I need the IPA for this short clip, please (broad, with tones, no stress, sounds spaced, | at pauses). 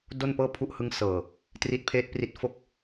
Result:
d o˥˩ n p ɤː˥˩ pʰ u˦˥ ʔ h ɯ˦˥ ŋ s ɤː˨˩ | t r i˦˥ t̚ pʰ eː˦˥ t̚ p r i˦˥ t̚ f o˥˩ k̚